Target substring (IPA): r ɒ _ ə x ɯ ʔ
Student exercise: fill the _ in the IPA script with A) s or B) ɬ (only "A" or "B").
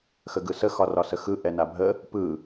A